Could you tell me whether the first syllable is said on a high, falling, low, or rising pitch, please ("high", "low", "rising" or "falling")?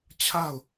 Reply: falling